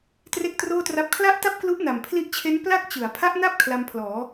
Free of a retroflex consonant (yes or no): yes